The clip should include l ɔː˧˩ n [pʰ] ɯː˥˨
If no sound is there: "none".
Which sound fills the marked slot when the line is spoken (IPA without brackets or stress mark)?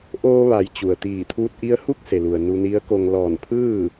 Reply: pʰ